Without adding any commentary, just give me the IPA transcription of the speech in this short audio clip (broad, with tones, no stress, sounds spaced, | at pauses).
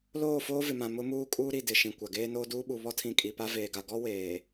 l oː˦˨ f oː˦ v ɪ˨ m ã˨ m ʊ˦ m uː˦ kʼ uː˦ ɾ i˨ d ɪ˨ ʃ ĩ˨ kʷ a˨ ɡ eː˦ n oː˦ d uː˦ ɓ u˨ β ɔ˦ tʰ ĩ˨ kʼ i˨ p a˦ v eː˨ ɡ a˨ ɡ ɔ˦ w eː˨